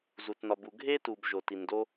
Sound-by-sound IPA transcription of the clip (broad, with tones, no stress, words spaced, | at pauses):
zu˧tnɒ˧bu˧ ɡʱe˥ tu˧b ʒo˧ti˧ndo˥